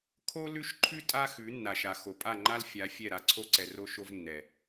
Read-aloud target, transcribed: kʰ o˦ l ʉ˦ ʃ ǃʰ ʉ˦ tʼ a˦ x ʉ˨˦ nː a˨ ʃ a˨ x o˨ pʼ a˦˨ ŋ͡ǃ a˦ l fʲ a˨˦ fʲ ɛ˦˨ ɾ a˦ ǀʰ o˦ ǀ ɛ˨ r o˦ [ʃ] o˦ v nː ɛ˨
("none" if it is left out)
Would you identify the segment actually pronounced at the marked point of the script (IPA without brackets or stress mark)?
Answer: ʃ